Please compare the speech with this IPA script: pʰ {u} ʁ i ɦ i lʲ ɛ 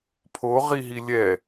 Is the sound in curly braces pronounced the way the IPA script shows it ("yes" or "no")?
no